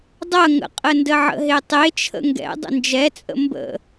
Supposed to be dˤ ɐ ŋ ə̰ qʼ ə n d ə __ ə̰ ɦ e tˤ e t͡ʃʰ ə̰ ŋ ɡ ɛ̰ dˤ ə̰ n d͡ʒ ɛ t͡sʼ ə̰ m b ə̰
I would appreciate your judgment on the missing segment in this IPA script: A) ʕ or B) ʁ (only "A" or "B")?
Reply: A